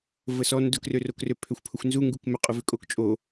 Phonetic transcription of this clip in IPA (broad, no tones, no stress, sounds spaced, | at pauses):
v ə s ɔ n d ʊ k r ø r o k r ø pʰ ø xʷ pʰ ʊ xʷ n z u ŋ ɡ u k m ʏ qʼ ʊ v ʏ kʼ o k t͡ʃʼ o